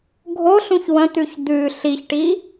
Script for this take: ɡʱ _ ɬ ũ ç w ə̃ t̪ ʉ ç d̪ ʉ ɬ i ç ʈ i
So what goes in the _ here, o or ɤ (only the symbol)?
o